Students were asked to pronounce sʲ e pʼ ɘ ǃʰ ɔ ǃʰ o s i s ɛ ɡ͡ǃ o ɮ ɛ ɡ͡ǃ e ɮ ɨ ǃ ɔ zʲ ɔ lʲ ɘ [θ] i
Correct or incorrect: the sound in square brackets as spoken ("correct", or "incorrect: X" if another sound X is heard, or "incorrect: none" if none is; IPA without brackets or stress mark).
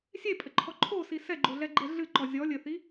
correct